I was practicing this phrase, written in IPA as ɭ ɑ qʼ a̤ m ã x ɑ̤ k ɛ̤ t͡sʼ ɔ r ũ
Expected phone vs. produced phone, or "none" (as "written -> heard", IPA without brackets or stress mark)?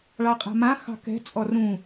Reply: none